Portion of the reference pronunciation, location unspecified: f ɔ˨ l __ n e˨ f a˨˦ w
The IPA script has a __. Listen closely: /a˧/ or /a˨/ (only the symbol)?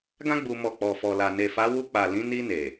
a˨